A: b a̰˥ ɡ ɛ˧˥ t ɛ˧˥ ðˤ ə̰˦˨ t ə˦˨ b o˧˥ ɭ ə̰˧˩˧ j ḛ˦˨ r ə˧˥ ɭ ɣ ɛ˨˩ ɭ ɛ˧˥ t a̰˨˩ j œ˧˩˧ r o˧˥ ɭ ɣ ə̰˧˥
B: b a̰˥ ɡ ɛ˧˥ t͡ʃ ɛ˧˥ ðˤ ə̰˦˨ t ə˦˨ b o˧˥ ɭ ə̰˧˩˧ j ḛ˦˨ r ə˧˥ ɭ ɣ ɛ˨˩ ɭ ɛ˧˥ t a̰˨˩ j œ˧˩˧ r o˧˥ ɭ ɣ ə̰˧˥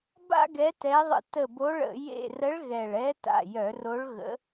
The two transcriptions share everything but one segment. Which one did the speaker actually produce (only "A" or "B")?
A